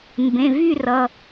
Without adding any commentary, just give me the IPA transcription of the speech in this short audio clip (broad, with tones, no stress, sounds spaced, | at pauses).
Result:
m b ẽ˩˧˩ v y˥˧ r ʌ˩˧˩